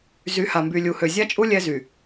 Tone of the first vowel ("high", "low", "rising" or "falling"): rising